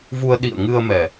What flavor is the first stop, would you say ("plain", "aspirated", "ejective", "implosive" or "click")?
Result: implosive